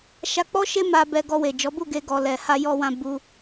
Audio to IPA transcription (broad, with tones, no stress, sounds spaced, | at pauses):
ʃ a˧ k͡p ɔ˦ ʃ e˦ m a˧ b ɛ˧ ɡ ɔ˧ w e˨ d͡ʒ ɔ˨˦ b u˦˨ ɡ e˧ ɡ ɔ˨ l ɛ˨ h a˧ j ɔ˧ w ã˧ b u˧